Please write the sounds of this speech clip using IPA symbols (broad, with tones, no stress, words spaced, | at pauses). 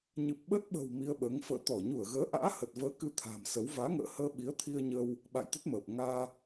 ɲɨ˨˩p̚ɓə˦˥t̚ɓə̤˨˩w mi˧ə̯ɓəː˨˦ŋ fə̰ː˧˨t̪ɔ˧˩ ɲu˧˩ə̯ɣəː˨˦ʔa̰ː˧˥ hə˨˩t̚vəː˨˦ kɨ˧t̪ʰa̤ː˨˩msə˨˦w vaː˨˦ŋə̰ː˧˨həː˧ ɓi˨˦ə̯t̪ʰi˧ə̯ɲəː˧w | ɓa̰˧˨jt̪ə˦˥t̚məː˨˩p̚ ŋaː˧